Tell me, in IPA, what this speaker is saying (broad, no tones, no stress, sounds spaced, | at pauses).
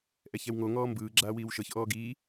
ʔ ɛ ç ɛ w ŋ o ŋ ɔː m b ɯː ɡ͡ǁ aː w iː w ʃ ɤ ç ʔ ɔː ɡ iː